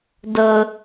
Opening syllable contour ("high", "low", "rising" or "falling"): low